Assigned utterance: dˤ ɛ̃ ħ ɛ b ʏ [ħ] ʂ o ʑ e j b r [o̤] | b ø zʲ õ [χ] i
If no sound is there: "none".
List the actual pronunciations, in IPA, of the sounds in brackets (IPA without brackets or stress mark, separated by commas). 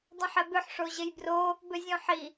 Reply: ħ, o, ħ